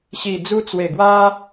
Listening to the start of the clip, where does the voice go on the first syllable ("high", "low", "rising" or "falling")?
low